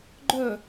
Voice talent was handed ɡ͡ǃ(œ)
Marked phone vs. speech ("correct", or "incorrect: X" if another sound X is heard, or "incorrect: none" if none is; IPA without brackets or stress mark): incorrect: œː